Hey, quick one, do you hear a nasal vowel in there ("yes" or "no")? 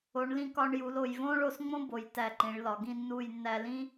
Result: yes